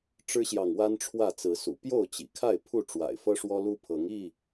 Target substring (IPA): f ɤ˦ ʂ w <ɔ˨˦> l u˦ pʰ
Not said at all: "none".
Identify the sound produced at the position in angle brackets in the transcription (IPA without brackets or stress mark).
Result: ɔ˦